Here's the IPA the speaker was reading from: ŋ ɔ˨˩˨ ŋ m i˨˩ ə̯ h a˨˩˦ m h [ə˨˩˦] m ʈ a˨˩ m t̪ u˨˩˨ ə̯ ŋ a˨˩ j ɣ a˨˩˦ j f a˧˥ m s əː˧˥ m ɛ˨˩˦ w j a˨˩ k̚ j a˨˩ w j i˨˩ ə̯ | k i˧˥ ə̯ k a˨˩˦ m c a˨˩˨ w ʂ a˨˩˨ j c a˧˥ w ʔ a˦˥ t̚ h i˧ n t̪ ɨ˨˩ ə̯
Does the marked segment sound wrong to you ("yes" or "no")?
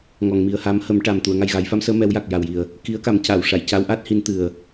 no